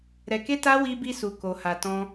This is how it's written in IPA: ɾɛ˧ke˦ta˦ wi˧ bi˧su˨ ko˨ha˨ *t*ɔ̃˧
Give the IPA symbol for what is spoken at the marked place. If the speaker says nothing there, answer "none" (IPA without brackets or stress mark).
t